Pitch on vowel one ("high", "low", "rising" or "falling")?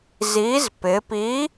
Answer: rising